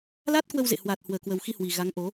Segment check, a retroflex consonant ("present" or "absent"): absent